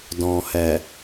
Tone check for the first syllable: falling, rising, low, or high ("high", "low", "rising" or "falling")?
low